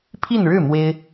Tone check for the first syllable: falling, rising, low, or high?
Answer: falling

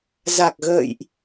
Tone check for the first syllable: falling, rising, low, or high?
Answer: low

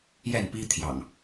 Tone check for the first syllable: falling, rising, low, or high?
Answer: falling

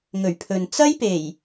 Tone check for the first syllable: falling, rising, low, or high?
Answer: low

